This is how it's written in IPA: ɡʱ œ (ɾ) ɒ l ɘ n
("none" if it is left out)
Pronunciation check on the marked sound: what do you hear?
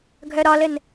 ɾ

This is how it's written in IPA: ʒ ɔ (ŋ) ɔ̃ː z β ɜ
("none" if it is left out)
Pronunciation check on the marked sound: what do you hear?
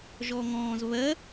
ŋ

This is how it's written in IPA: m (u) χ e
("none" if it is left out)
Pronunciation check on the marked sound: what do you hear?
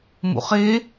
ṵ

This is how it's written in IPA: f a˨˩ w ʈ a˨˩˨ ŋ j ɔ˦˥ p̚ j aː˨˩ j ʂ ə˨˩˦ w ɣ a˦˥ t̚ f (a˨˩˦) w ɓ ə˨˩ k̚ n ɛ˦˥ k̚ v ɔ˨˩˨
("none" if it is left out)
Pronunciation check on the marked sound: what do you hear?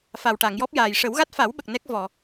a˨˩˦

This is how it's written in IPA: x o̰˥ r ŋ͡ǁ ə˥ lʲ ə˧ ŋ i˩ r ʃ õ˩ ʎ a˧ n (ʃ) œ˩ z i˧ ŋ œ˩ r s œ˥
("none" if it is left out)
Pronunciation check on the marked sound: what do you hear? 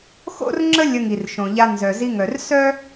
z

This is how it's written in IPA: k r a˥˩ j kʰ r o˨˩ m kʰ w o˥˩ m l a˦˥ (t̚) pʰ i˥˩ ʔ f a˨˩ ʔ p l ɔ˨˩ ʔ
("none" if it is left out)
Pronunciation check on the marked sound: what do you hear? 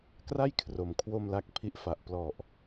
k̚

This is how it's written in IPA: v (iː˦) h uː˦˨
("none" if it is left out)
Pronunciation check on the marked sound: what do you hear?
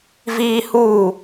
iː˦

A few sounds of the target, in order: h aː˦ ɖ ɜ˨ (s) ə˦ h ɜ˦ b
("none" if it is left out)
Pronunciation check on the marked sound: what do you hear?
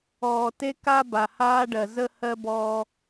z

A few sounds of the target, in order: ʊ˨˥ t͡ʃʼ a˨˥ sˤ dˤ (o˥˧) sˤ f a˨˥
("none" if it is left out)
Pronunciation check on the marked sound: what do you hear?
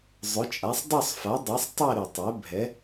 o˥˧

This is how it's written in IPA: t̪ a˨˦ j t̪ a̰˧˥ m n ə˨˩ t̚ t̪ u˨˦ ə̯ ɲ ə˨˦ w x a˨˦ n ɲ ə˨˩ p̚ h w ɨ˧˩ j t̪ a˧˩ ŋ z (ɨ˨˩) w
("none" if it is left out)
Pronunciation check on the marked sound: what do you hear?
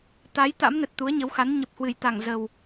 ə˨˩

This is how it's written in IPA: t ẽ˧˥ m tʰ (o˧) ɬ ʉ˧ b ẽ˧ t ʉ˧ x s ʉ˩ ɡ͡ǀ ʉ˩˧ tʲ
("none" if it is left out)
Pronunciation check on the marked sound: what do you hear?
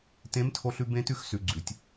o˧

